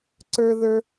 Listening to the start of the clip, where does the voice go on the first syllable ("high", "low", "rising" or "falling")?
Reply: high